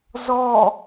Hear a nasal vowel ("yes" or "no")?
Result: no